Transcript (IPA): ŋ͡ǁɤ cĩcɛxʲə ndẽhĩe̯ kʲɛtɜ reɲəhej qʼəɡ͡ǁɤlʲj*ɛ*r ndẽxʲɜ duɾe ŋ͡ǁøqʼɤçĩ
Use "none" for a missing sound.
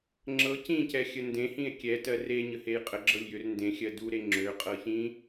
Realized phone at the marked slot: ø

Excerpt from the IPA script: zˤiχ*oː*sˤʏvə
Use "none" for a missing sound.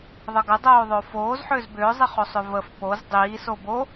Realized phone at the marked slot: o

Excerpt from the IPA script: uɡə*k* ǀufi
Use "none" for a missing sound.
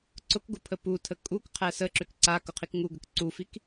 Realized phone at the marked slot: k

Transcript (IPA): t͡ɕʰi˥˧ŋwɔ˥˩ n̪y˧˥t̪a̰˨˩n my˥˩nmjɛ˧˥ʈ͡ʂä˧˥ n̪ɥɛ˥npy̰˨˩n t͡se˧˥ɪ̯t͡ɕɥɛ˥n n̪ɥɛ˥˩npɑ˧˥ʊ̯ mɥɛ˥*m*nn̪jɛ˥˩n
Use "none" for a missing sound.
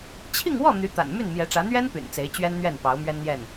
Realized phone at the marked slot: none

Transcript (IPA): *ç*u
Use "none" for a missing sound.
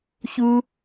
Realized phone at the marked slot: ç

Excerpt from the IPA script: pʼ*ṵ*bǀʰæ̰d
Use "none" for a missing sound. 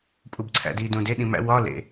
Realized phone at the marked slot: u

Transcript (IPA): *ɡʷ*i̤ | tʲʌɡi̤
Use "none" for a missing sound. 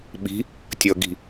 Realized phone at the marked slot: ɓ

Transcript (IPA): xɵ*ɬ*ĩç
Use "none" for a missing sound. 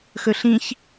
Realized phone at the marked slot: ɬ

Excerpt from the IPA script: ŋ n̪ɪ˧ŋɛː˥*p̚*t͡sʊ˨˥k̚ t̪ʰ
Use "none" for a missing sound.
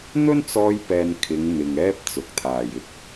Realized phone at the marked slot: p̚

